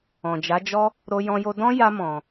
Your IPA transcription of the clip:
ɔ̃˨d͡ʒa˨˦d͡ʒɔ˦ | ɾo˦jɔ̃˦ jo˦ dɔ̃˦ja˧ mɔ̃˨

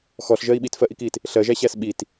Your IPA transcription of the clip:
xɔɬʒɜi̯ ɓitfɜʔikit | ɬɜʒæɕæs ɓit

